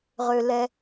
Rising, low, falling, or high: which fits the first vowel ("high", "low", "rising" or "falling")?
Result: low